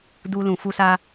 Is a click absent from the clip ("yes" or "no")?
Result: yes